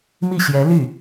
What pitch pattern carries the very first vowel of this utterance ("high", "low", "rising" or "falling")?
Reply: falling